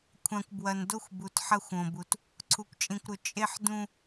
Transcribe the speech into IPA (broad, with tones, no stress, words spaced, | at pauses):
kʷʰã˨kʷbwɐ˨n do˦xʷbu˨t ħɐ˦xʷõ˨ bu˨t | ǀʰu˨kʷt͡ʃʼĩ˨kʷɾɵ˨ t͡ʃʼe˦ħdũ˦